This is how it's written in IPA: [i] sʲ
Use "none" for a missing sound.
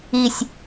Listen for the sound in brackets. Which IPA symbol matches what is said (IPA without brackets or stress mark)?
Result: i